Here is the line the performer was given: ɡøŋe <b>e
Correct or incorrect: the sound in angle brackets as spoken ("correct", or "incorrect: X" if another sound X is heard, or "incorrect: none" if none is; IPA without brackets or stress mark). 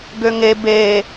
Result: correct